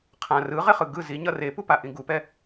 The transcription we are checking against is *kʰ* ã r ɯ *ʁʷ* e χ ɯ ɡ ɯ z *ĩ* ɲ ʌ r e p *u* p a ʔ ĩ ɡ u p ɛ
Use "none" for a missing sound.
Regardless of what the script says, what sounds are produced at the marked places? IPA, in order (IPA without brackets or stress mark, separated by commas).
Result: qʰ, ʁ, i, u